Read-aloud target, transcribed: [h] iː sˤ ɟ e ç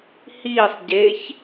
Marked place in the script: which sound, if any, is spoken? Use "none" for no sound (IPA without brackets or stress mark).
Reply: h